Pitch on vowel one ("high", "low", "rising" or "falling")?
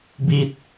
low